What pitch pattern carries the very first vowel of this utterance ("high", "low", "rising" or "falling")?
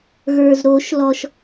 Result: low